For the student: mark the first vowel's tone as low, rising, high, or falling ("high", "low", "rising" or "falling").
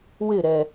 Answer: falling